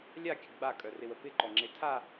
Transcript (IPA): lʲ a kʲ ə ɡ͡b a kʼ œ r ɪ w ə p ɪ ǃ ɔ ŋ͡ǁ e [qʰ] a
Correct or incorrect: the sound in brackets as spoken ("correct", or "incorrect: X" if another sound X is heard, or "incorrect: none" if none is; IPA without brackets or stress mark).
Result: incorrect: tʰ